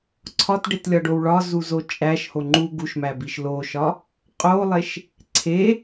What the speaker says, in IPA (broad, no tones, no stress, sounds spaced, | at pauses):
ǀʰ ɒ t ɖ e t lʲ ɒ ɖ o w ɭ ɒ z u z o t͡ʃʼ æ ʃ h o ŋ͡ǃ u ɡ u ʃ m æ b i ʃ l o ʃ ɒ | qʼ o lˠ e ʃ | ǀʰ e